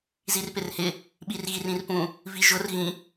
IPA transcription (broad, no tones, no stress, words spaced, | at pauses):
zirpɪrhɪ | ɓirɣirĩrpũ | viʒʊr ɣĩ